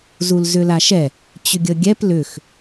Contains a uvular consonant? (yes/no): no